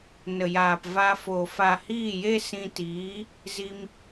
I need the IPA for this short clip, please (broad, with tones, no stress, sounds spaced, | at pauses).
n ə˨ j aː˨ p v a˧ f o˨ f a˨ h iː˦˨ j e˦ s ĩ˧ t iː˨˦ | z i˧ m